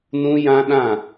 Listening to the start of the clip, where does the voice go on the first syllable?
high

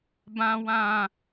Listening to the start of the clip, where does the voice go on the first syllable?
low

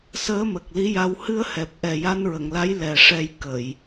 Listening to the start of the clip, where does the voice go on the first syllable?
rising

